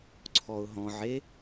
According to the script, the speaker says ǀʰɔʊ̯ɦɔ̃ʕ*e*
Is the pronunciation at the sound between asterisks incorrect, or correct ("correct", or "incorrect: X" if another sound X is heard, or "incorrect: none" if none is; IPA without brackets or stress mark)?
correct